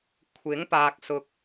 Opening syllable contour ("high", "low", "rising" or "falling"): rising